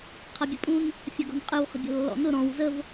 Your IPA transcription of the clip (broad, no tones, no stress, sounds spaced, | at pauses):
qʰ ɐ bʲ ə pʼ ũ n | fʲ ɐ ɡ ɔ̤ n qʼ ɯ w χ ə̤ bʲ ɔ̤ lː ɔ̰ n ʊ ɾ ɔ̃ w z ə v